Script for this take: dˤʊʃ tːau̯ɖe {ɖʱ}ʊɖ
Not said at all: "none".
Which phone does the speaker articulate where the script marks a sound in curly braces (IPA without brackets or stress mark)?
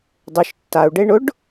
ɳ